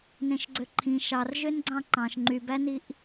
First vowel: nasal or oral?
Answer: nasal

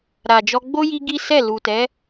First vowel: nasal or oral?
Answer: oral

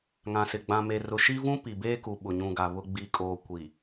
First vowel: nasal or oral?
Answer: nasal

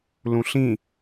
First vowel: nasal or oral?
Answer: nasal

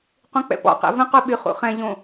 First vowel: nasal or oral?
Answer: nasal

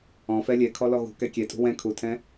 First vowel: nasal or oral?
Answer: nasal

